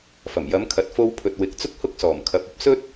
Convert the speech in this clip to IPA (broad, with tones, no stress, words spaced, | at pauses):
fɐ˨˩mjɐ˨˧mkʰɐ˨t̚ fo˧wpʰɵ˨t̚ wɪ˨˥k̚t͡sʊ˥k̚ hʊ˥k̚sɔː˨˩m kʰɐ˨˥p̚ ɐ˨p̚sɵ˥t̚